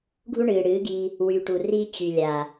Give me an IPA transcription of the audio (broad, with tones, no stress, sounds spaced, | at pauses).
ɡʱ u˦ ɳ ɨː˨ ɽ ɨː˨˦ ɡ i˧ | w y˨ ʈ u˨ r i˦ t͡ɕ y˨ lʲ a˨